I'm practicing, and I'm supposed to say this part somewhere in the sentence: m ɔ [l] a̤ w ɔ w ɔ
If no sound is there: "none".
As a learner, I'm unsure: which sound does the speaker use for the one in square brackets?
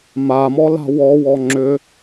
l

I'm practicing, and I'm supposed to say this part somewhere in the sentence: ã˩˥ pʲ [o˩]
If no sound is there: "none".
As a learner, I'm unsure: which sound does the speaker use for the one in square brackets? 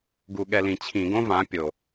o˩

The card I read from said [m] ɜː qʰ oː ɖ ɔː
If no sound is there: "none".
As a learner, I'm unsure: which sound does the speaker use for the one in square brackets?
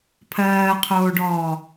pʰ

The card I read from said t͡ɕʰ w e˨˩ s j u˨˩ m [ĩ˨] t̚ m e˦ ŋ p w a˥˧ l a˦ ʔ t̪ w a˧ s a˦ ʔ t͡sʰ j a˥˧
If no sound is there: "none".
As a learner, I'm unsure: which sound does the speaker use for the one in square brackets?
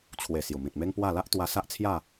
ĩ˨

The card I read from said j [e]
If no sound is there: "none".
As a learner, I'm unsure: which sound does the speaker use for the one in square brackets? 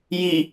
i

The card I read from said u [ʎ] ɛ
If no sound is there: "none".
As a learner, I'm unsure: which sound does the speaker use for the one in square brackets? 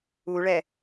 ɭ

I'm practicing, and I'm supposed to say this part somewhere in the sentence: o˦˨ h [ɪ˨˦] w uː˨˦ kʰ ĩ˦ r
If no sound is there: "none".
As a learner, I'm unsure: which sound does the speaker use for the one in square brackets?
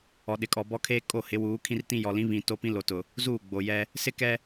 ɪ˨˦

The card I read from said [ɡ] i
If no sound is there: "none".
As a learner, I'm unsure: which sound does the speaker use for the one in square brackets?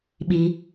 ɓ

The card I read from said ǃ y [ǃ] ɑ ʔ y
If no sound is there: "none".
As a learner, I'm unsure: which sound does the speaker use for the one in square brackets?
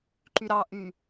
ɾ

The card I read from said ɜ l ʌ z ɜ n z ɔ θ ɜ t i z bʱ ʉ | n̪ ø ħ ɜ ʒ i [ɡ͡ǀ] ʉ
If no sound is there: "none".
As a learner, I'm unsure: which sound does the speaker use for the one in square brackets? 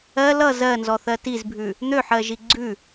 ɡ͡ǀ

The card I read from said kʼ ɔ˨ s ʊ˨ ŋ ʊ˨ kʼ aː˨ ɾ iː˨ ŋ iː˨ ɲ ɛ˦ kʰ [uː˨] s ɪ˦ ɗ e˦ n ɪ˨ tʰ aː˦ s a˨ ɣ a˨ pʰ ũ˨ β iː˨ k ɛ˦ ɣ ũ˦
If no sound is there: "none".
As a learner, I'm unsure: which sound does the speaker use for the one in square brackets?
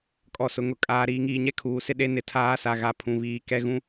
uː˨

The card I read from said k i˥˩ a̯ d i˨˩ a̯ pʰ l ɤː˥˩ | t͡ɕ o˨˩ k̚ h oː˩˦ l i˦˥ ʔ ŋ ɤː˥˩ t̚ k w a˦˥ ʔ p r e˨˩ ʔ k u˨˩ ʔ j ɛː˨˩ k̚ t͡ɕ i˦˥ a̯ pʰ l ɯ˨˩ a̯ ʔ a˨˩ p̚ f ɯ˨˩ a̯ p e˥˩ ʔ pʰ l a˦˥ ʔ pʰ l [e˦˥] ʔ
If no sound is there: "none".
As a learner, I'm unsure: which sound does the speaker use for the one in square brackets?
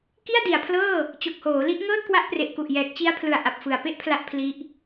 i˦˥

